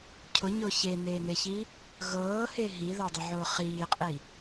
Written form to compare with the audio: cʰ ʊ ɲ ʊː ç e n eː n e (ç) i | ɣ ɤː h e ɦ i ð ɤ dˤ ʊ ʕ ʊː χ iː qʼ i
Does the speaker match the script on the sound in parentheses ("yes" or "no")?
yes